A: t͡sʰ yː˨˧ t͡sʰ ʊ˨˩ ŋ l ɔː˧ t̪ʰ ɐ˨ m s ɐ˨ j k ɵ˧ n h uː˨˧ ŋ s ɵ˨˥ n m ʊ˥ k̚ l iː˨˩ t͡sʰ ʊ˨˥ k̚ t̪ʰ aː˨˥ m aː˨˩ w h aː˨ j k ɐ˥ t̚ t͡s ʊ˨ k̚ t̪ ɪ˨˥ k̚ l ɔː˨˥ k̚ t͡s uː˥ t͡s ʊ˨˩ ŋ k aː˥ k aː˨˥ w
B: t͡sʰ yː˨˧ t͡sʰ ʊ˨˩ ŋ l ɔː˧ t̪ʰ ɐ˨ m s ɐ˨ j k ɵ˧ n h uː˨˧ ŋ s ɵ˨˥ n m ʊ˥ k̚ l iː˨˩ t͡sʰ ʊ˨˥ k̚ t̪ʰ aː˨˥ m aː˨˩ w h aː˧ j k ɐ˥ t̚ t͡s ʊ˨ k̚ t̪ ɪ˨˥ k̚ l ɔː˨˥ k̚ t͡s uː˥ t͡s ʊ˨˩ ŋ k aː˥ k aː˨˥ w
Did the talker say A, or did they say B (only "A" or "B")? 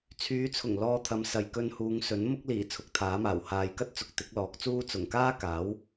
A